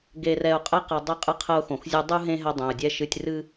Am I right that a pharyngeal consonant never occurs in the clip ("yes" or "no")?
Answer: yes